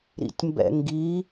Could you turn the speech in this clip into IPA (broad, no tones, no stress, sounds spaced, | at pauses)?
ɾ ḭ tʲ m b ɛ̰ ŋ ɡ i